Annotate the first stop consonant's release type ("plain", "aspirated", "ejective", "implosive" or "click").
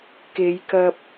plain